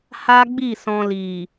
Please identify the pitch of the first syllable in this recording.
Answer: high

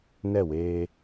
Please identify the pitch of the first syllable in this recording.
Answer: falling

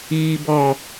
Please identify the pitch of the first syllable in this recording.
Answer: low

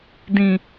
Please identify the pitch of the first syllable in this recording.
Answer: low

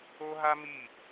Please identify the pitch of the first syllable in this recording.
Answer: high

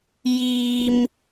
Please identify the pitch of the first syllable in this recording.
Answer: low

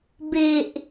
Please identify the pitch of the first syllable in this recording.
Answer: low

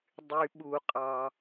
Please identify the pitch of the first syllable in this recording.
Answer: low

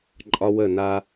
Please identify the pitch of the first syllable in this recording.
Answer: high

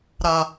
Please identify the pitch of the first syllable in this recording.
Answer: high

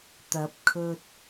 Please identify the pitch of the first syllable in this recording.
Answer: rising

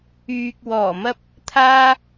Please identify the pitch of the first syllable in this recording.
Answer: low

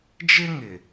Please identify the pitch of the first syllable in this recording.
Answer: high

